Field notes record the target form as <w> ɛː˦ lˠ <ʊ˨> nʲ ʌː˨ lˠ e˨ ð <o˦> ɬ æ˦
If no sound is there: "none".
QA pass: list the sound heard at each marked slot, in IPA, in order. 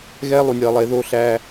ɣ, u˨, o˦

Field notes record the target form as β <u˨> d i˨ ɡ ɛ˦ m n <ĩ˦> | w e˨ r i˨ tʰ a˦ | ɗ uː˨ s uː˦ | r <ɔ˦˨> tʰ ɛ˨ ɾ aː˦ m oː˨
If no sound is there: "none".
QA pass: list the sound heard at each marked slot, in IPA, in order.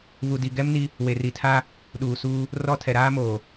u˨, i˦, ɔ˦˨

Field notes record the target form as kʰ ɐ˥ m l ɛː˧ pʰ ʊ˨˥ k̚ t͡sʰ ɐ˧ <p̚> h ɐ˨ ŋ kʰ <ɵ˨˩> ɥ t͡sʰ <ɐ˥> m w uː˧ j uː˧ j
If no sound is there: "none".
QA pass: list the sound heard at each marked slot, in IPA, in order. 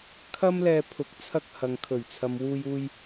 k̚, ɵ˨˩, ɐ˨

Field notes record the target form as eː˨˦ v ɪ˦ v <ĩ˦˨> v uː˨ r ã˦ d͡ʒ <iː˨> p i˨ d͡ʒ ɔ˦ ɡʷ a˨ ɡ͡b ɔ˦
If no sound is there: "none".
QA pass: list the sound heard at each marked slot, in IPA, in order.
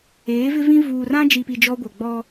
ĩ˦, i˨

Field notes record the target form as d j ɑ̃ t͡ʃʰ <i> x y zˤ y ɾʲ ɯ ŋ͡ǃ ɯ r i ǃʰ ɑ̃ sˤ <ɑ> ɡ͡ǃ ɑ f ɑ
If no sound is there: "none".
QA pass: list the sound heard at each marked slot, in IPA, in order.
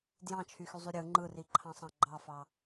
y, ɑ̃

